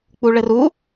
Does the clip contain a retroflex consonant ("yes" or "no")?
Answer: yes